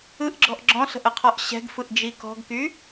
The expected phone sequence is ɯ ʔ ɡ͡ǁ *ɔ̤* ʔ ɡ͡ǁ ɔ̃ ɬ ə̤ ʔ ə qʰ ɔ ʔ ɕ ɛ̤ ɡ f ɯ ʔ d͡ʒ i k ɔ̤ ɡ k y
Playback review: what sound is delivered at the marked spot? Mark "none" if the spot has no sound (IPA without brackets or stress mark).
ɔ̤